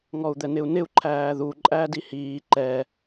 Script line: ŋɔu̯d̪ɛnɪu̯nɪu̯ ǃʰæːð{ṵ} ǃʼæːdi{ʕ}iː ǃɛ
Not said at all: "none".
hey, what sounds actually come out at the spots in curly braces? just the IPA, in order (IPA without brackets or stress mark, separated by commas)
u, h